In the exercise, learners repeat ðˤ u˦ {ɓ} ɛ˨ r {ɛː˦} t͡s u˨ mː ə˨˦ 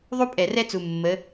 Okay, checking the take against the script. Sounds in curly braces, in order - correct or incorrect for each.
incorrect: pʼ, incorrect: ɛ˦

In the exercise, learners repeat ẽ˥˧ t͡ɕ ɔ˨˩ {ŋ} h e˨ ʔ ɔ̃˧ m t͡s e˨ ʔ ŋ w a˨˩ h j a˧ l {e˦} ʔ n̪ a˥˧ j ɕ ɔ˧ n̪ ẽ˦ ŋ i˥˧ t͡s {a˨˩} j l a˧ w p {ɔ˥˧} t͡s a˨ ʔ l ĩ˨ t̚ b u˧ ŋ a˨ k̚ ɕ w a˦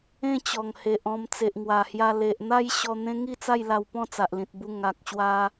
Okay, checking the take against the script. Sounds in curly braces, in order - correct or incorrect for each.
correct, incorrect: e˨, incorrect: a˥˧, incorrect: ɔ̃˥˧

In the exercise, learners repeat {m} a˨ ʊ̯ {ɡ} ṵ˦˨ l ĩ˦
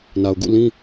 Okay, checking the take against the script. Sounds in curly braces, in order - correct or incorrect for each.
incorrect: n, correct

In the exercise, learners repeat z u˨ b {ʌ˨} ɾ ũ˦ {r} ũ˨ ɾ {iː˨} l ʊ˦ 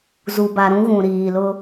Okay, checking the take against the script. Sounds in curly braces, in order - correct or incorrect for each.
incorrect: a˨, incorrect: ɣ, correct

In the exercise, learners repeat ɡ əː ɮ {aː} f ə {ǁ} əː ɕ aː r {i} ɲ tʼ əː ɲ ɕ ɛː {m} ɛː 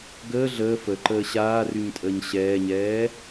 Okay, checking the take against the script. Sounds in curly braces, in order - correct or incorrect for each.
incorrect: əː, incorrect: ǃ, incorrect: y, incorrect: ɲ

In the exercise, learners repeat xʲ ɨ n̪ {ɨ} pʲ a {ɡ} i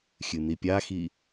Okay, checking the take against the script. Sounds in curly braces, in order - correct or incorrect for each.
incorrect: i, incorrect: x

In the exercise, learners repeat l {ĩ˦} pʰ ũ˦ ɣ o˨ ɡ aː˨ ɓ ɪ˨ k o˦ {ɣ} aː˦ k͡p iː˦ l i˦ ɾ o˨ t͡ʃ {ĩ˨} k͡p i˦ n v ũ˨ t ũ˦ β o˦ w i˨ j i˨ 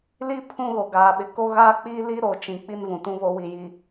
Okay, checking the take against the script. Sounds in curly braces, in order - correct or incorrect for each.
incorrect: i˦, correct, correct

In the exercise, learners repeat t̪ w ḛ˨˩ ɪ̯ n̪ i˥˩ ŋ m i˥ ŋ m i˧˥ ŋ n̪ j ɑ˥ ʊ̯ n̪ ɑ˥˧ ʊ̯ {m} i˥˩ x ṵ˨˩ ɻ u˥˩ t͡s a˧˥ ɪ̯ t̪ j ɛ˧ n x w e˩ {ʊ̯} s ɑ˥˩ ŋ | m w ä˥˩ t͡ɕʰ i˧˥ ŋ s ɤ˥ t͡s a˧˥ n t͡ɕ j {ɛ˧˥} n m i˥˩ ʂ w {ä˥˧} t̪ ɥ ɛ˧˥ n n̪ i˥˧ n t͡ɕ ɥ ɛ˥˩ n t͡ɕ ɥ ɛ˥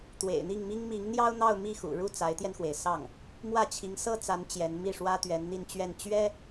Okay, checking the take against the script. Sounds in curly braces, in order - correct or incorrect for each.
correct, incorrect: ɪ̯, correct, incorrect: ä˥

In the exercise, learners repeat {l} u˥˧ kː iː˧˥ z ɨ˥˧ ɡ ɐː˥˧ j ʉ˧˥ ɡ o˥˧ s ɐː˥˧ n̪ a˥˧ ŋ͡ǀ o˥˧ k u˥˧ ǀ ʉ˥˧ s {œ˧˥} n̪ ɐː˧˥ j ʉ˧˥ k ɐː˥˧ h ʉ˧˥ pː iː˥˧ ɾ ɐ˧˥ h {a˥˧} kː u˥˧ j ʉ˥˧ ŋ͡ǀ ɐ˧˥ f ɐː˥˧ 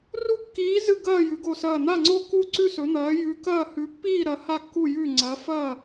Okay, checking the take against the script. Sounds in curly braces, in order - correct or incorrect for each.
incorrect: r, incorrect: ɵ˧˥, correct

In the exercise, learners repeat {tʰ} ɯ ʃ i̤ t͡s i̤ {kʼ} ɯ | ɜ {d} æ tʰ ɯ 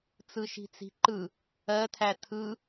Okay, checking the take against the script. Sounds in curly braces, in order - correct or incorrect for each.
incorrect: t͡s, incorrect: ǃ, incorrect: tʰ

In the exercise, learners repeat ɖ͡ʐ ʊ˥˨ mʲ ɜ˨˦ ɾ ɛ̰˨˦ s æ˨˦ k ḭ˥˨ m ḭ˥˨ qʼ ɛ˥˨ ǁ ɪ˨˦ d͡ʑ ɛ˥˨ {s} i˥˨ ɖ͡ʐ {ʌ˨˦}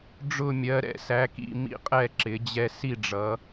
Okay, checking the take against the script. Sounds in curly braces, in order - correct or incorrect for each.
correct, correct

